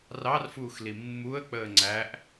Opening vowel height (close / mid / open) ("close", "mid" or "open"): open